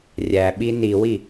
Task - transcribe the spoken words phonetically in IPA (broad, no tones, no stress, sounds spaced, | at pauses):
rʲ æ ɓ i n i w i